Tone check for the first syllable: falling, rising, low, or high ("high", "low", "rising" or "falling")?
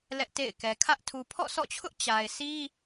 high